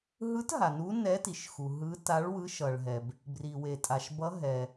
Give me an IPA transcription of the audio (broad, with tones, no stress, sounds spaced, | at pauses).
ɦ ɯ˧˥ t ɦ a˩ n u˧˥ n ɛ˧˥ t i˩ ʃ x u˩ ɦ ɯ˧˥ t a˧˥ ɭ w ɯ˧˥ ʃ ʌ˩ ɭ ɦ ɛ˩ b | b r i˩ w e˩ tʼ a˩ ʃ b ʌ˧˥ ɦ ɛ˩